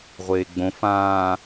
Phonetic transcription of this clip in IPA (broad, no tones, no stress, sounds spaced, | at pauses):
ʁʷ eː ɡ͡b õ f ãː